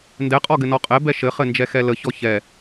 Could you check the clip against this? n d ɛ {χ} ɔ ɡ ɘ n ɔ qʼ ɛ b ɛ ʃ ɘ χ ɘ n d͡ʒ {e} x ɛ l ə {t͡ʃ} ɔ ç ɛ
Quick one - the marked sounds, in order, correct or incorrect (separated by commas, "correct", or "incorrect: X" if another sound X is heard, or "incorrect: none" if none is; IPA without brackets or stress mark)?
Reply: incorrect: qʼ, incorrect: ɛ, incorrect: ç